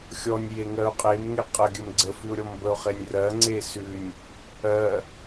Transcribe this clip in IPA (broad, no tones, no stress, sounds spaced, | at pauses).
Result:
xʲ ɔ nʲ j e ŋ ɜ ʊ̯ qʼ e m ŋ e qʼ ə ɡʲ ə m ɡ͡ǀ ə f ʉ ʊ̯ ɾʲ ɔ m b ə ʊ̯ χ e nʲ r ɜ ŋ͡ǀ e s ʉ nʲ | ɜ